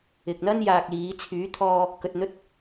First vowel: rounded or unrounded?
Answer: unrounded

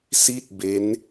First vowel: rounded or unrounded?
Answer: unrounded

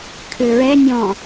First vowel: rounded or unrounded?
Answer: rounded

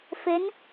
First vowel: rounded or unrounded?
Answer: unrounded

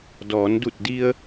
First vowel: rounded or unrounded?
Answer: rounded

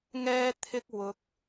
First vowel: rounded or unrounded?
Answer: unrounded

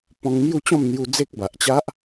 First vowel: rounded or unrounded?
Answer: rounded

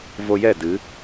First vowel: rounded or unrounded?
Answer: rounded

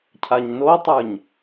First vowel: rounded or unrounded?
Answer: unrounded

